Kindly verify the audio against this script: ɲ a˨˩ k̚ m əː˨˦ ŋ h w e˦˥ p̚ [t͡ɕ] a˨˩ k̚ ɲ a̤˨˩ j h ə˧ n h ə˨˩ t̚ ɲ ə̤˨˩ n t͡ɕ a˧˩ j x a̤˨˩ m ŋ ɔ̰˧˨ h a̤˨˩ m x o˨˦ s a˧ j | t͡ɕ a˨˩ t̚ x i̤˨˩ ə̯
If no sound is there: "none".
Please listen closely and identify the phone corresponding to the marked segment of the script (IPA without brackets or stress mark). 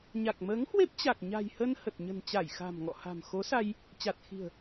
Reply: t͡ɕ